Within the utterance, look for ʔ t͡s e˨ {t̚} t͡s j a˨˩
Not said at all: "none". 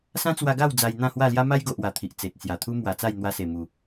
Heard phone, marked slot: t̚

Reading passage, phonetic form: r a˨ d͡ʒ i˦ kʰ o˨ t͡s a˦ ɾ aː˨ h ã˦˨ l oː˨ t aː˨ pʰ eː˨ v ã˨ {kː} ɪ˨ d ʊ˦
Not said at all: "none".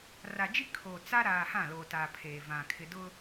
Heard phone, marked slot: kʰ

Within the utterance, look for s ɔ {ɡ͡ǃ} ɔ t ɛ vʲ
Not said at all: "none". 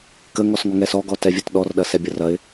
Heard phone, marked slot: ɡ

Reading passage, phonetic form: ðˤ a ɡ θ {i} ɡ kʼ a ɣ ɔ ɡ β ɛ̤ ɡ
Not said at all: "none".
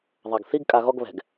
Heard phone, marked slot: i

